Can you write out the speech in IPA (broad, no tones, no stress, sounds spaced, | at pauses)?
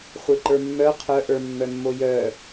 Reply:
χʷ e ǃ ə˞ mː œ qʰ œ ʔ ə˞ mː œ mː o j œ